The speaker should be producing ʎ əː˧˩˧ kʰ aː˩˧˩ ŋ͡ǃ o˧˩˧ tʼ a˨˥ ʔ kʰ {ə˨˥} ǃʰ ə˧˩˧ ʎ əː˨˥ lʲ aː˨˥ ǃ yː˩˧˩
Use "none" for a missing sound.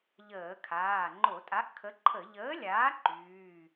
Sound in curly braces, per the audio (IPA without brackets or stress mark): ə˨˥